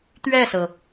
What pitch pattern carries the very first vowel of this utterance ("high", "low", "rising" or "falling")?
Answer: falling